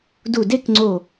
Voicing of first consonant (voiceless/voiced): voiced